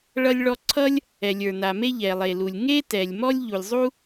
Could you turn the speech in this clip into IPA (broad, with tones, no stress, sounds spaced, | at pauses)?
ɭ ʌ˥ lʲ ɭ ɔ˥ ǀʰ ʌ˥ lʲ | ɛ˩ lʲ ə˞˩ n a˩ m e˥ ʎ ɛ˩ lˠ e˩ l u˩ lʲ ŋ e˥ t ɛ˩ lʲ m ɔ˥ lʲ ʎ u˩ lʲ zˤ u˥